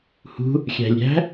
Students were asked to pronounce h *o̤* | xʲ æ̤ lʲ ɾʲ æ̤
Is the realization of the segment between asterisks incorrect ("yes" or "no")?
yes